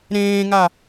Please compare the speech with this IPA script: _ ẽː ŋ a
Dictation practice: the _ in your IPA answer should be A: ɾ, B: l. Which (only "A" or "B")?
A